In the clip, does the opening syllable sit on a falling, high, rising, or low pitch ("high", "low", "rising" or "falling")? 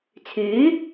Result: rising